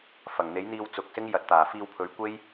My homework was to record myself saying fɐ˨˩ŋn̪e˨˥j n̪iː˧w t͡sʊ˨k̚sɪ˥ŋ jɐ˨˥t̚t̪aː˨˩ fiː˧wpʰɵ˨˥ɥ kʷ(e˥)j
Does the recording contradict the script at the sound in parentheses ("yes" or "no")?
no